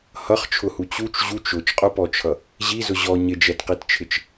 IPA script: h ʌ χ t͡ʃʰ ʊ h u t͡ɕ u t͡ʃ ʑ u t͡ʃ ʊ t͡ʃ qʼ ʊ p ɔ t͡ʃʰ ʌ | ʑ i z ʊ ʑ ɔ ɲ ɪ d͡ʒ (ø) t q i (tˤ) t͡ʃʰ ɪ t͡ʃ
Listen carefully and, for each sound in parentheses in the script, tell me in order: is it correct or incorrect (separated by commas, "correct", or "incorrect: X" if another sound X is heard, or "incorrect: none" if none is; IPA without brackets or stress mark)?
incorrect: ɛ, incorrect: t